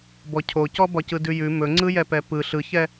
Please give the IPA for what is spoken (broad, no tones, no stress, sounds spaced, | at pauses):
b ɔ cʰ o c ɔ b ɒ c ɯ d ʉ j ʉ m ɵ ŋ͡ǀ ɯ j ɛ p ɛ p ɯ ɬ ɯ ç ɛ